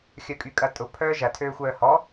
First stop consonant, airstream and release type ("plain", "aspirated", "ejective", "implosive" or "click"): ejective